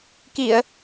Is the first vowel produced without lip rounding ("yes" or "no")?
yes